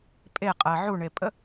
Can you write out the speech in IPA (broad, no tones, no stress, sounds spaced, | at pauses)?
pʼ e qʼ ɜ ʕ u ɳ e pʼ ə